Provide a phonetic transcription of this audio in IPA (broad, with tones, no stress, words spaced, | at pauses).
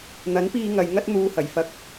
n̪ɐ˨˥npiː˧ ŋɐ˨j ŋɐ˥t̚ n̪uː˧hɐ˨˩jfɐ˧k̚